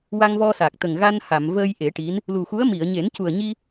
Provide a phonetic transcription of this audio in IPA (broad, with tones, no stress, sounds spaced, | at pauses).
w a˧ ŋ v ɔ˧ s a˨˩ k̚ t̪ ə˨˩ ŋ ɣ a˧ n h a˨˩˨ m v əː˧ j ʔ e˨˩˦ ʈ i˧˥ n | l u˨˩ x u˧˥ ə̯ m i˨˩˨ ə̯ ɲ e˨˩˦ n c u˨˩ ə̯ ɲ i˧